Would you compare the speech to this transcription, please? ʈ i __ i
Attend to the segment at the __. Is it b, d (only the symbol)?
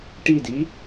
d